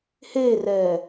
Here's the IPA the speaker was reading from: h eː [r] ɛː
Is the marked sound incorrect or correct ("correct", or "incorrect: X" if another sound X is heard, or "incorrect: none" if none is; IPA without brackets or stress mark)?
correct